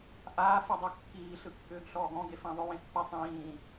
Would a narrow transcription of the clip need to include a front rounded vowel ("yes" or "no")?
yes